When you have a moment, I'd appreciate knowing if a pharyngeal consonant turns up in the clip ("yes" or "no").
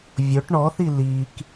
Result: no